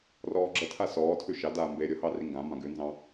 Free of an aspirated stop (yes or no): no